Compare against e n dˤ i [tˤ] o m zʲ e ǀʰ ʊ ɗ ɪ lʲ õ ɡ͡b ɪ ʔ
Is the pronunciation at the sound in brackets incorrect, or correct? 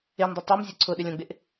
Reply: correct